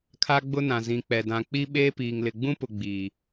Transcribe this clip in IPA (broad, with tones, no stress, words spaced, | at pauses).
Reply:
kʰa˦ɡ͡bʊ˦nã˨ zĩ˨k͡pɛ˨dã˨ k͡pi˦ ɓeː˦piː˨ŋlɪ˨ ɡ͡bũ˦pʊ˨ ɡ͡biː˨